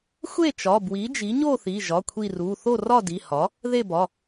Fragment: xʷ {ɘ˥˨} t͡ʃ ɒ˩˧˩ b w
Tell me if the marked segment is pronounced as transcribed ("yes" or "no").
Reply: no